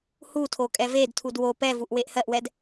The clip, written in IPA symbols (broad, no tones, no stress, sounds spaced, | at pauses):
h u tʰ o kʼ ɛ v e d tʰ u d w o p ɛ v u ʔ w e ʔ h ɜ ʔ w ɛ d